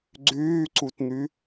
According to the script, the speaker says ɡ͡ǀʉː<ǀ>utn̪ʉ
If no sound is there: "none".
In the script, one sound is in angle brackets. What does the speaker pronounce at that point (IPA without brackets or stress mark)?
ǀ